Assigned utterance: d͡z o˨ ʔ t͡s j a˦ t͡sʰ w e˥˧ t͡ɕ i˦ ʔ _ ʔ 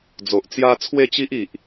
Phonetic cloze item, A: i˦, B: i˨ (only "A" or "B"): B